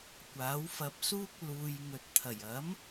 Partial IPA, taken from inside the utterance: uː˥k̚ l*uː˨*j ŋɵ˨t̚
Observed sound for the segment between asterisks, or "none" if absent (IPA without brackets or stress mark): uː˨